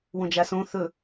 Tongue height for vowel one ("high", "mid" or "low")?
mid